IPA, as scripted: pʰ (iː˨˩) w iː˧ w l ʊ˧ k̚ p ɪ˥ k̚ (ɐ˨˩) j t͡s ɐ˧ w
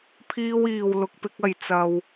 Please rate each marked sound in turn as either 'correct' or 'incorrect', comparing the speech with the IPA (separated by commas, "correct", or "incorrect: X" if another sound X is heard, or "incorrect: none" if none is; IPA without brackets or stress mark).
incorrect: iː˥, incorrect: ɐ˧